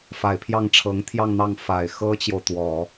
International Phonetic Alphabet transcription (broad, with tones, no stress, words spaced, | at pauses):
fa˨˩ɪ̯pʰjɑ˥˩ŋʈ͡ʂʰɤ˧˥ŋ t̪ʰjɑ˥˧ŋn̪ɑ˥˩ŋ fa˨˩ɪ̯xɤ˥t͡ɕjo˨ʊ̯t̪wɔ˨˩˦